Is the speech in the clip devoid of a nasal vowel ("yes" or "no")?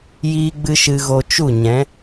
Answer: no